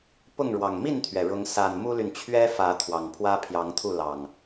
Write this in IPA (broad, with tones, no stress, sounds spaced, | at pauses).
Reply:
p ʊ˥˨ ŋ ɻ w ɑ˨˩ ŋ m i˥˨ n t̪ʰ ɥ ɛ˩ ɻ ʊ˨˦ ŋ s a˨˩ n m u˦ l y˨ n t͡ɕʰ ɥ ɛ˦ f ä˨˦ t̪ʰ w ɑ˨˩ ŋ pʰ w ä˦ pʰ j ɑ˨˦ ŋ t̪ʰ u˥˨ l ɑ˨˩ ŋ